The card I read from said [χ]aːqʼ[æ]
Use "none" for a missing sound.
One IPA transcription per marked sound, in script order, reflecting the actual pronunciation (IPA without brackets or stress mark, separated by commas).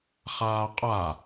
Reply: χ, a